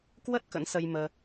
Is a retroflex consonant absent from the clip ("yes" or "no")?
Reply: yes